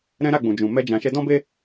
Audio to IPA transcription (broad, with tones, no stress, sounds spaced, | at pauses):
ɾ ɛ̃˦ ɾ a˦˨ ɡ͡b ũ˨ d͡ʒ ũ˨ m ɛ˧ d͡ʒ ã˨ ʃ ɛ˧ d ɔ̃˦ b e˦